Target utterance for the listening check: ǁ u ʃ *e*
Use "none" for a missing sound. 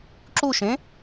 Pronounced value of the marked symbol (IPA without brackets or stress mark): ẽ